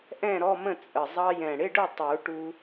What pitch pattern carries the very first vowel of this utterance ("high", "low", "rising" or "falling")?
falling